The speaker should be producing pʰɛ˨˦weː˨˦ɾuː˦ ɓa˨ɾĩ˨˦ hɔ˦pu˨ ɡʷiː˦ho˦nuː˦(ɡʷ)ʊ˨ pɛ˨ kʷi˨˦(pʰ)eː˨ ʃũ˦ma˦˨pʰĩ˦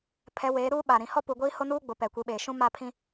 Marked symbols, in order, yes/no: no, no

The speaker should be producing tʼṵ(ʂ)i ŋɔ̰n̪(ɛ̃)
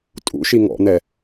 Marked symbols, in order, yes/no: no, no

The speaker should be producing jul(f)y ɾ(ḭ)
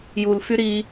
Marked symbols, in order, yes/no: yes, no

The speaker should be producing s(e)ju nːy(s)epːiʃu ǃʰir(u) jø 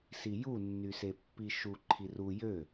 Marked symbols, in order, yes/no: no, yes, yes

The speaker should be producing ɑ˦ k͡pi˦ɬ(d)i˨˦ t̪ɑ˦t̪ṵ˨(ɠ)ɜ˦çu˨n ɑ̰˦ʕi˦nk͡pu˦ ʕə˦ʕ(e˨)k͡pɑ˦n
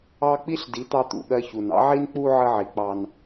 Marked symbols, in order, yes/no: yes, yes, no

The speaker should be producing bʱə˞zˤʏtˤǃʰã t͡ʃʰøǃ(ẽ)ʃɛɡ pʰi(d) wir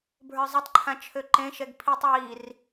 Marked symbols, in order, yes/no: yes, no

